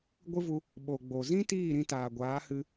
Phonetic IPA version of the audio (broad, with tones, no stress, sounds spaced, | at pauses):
ɡʷ ɨ˦ v u˧ | ɓ o˨ ɡ͡b o˨ z ĩ˦ t iː˦˨ ɾ ĩ˧ t aː˨ ɡʷ aː˨˦ h ɨ˧